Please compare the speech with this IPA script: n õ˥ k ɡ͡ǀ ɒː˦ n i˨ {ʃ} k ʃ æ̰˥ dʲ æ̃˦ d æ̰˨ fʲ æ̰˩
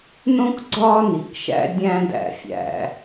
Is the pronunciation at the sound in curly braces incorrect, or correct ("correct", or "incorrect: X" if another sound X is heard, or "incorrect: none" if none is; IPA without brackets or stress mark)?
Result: incorrect: none